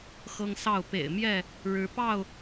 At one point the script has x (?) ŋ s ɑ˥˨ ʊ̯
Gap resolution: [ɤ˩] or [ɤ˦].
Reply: ɤ˦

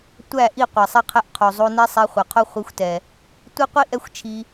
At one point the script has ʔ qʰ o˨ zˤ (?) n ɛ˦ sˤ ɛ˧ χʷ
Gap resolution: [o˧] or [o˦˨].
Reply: o˧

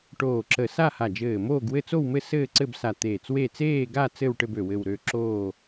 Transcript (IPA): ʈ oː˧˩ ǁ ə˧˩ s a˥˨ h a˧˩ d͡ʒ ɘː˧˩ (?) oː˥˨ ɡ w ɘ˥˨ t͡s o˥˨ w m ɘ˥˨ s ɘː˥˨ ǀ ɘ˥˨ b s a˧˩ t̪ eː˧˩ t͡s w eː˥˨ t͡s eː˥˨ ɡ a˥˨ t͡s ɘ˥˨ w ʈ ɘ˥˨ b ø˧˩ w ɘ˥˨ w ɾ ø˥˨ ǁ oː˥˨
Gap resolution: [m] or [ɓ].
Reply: m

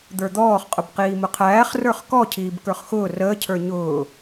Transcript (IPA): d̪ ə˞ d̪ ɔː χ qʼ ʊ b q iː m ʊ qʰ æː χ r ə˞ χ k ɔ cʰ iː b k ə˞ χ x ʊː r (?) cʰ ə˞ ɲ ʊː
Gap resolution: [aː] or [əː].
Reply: əː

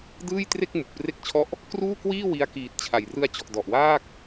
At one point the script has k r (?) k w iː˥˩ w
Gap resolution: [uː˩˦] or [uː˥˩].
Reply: uː˥˩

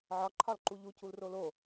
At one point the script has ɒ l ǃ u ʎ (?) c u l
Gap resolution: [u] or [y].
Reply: u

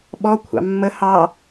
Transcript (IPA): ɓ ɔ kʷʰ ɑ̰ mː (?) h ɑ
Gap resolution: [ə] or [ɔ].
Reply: ə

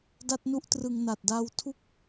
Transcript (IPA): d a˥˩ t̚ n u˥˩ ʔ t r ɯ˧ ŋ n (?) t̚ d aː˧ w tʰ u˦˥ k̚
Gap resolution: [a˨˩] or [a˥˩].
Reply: a˨˩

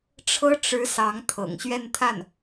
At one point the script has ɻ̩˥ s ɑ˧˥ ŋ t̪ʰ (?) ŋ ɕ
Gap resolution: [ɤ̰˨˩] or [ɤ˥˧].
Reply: ɤ̰˨˩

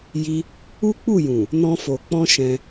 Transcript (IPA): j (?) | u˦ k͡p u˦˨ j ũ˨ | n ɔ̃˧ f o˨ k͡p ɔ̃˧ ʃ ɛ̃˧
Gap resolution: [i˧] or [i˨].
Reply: i˧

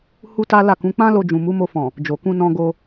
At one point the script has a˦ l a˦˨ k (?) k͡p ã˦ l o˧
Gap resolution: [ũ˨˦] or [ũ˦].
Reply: ũ˨˦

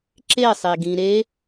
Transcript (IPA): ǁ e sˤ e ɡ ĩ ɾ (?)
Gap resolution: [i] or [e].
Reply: e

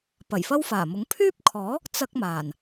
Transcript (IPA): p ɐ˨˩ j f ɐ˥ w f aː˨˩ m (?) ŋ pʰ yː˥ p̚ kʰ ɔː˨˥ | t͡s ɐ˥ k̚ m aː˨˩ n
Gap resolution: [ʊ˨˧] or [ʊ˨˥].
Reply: ʊ˨˥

